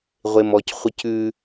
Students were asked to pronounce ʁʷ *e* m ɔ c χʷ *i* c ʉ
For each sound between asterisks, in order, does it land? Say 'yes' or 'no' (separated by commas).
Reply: yes, yes